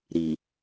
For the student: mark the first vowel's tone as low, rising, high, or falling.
low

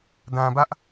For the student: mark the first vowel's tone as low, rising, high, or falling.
low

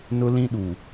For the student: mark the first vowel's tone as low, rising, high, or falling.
high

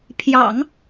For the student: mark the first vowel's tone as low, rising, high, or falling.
low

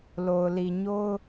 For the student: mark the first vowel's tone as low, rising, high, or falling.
low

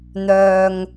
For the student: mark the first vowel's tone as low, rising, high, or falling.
low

